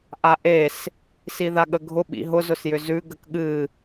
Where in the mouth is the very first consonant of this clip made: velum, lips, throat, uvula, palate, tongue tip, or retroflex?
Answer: throat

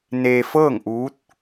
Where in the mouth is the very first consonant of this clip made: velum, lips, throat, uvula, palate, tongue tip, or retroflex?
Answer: tongue tip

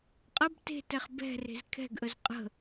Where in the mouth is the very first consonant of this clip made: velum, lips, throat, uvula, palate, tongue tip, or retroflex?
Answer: uvula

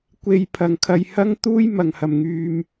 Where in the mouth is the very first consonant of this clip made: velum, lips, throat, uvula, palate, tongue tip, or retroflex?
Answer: velum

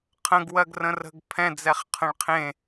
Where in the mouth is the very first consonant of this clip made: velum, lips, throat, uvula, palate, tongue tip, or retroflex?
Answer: uvula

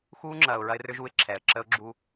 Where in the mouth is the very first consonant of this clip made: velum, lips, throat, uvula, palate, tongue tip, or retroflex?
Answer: velum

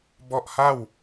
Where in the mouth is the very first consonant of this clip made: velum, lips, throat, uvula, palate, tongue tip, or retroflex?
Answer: lips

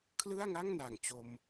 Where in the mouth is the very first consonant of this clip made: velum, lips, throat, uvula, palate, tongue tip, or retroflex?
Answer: velum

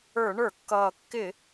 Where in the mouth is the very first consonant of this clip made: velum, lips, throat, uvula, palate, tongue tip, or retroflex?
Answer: retroflex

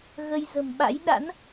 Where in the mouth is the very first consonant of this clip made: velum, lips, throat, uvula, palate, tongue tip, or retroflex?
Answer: velum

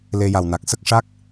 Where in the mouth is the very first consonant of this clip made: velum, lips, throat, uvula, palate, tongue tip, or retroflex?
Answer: tongue tip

